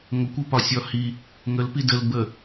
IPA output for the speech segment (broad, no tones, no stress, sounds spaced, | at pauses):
ŋʷ ə kʷ ə p ɒ sʲ ɒ h i | ŋ ə l p i d ə l b ə